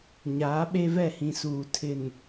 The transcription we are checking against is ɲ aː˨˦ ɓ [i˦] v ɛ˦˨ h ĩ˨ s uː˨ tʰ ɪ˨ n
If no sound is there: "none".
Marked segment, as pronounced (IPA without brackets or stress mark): e˦